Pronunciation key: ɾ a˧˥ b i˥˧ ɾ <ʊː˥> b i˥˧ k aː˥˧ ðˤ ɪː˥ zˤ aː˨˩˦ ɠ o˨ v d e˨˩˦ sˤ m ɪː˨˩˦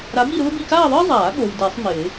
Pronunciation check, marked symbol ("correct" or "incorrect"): correct